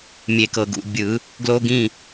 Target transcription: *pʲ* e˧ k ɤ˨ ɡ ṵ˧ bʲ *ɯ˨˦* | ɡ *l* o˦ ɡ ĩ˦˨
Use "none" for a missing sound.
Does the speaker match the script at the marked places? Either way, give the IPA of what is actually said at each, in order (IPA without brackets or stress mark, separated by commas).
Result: mʲ, ɯ˨˦, l